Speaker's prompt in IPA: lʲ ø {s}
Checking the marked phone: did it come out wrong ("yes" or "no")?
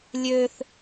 yes